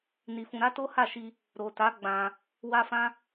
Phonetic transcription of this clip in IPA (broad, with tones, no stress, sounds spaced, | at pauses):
n i˧ f ũ˧ ɾ a˦ t o˦ h a˦˨ ʃ i˧ | ɾ o˨ t a˨˦ ɡ͡b ã˧ | w a˦ f ã˦